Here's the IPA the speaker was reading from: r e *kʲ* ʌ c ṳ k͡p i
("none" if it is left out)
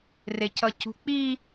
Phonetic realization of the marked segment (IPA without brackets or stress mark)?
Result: c